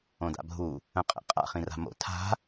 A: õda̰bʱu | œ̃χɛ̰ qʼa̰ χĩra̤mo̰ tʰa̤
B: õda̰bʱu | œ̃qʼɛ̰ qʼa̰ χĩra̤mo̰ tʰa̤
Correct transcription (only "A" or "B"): B